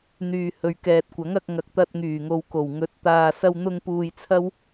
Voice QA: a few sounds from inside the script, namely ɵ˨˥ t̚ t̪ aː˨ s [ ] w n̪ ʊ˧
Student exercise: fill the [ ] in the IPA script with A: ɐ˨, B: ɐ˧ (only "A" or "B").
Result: B